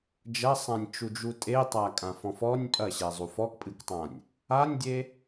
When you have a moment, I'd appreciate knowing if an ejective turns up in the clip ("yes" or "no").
yes